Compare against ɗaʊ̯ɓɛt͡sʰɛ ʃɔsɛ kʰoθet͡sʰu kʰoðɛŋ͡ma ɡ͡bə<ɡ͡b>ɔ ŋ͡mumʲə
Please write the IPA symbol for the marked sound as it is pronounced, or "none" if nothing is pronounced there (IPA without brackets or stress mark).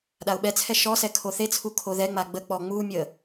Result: k͡p